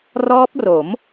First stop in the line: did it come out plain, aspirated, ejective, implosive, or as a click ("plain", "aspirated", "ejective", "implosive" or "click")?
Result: plain